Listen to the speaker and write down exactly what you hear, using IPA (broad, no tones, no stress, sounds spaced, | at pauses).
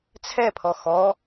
t͡sʰ ɛ pʰ ɔ x ɔ